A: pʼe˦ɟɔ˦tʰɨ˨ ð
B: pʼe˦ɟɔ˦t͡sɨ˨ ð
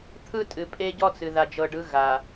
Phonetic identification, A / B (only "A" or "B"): B